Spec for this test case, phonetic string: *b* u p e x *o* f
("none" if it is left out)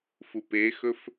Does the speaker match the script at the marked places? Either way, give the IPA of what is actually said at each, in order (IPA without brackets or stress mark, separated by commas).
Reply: f, ɵ